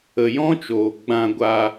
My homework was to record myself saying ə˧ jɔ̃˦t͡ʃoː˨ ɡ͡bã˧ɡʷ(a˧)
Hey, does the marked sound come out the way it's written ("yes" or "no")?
yes